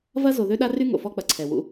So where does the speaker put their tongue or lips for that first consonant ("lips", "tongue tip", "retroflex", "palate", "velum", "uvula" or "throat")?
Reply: lips